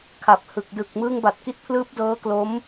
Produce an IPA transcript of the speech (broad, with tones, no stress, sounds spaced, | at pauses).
kʰ a˨˩ p̚ h ɯ˨˩ k̚ d ɯ˨˩ k̚ m ɯː˧ ŋ b a˨˩ t̚ k i˦˥ t̚ pʰ l ɯː˦˥ p̚ d ɤː˦˥ k l o˦˥ m